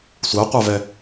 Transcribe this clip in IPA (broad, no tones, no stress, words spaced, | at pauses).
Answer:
sʷɜqʷavɛ